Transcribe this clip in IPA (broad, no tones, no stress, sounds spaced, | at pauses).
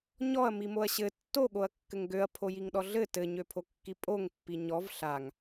ɲ ɔ ɐ̯ m i m o ɐ̯ ɕ ɘ tː o ɠ o ɐ̯ kː ɘ ŋ ɡ ø ɐ̯ pʰ o j i ŋ ɗ ɔ ɮ ɘ t ɘ ɲ ø pʰ o kː i pʼ o ŋ pː i ɲ ɔ v ɬ a ŋ